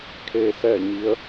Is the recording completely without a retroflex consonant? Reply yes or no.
yes